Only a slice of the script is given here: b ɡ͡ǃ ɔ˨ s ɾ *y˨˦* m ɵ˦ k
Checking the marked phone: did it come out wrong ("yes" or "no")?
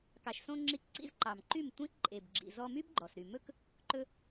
yes